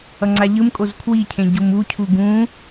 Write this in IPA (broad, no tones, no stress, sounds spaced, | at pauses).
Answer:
ʌ ŋ͡ǀ a ʎ ɯ m kʼ o z kʰ w i cʰ ẽ ɟ u m u cʰ u ɡ ũ